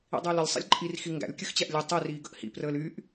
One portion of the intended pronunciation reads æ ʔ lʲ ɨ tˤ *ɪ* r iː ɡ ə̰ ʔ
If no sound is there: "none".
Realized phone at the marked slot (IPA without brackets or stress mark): i